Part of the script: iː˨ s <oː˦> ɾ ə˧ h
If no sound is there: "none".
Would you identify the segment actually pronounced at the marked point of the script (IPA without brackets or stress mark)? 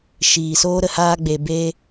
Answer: oː˦